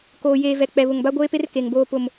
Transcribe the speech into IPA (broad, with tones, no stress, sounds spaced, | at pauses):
k oː˨ j eː˨ v ɛ˨ k͡p ɛ˨ β ʊ˨ ŋ b a˦ ɡʷ eː˦ p e˦ r k e˨ ŋ b oː˦ p ʊ˨ m